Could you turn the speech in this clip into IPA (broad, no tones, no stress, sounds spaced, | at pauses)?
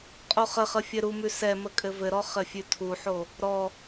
qʼ o χ ə χ ə fʲ ɘ ɾ u m ʉ s ɛ m ə kʼ ɘ v ɘ ɾ ɔ χ ɘ fʲ ʉ tʰ u ħ o | ɾ ɔ